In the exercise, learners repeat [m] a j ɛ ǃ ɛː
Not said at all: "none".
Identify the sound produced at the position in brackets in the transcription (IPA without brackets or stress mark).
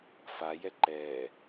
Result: f